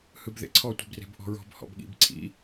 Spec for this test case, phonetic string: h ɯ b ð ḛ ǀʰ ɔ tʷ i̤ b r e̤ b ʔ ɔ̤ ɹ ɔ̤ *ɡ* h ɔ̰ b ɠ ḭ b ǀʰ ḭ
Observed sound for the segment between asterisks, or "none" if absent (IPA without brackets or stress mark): b